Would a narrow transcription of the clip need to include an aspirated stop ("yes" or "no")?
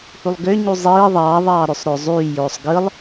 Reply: no